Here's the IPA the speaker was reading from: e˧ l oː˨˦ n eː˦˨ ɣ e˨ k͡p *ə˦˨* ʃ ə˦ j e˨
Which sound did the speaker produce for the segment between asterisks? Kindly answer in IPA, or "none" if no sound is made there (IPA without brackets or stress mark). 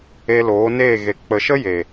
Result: ə˨